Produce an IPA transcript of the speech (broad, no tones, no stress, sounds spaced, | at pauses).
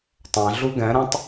tˤ æ̃ ɮ u ɡ ɛ̃ ɾ ɛ̃ tˤ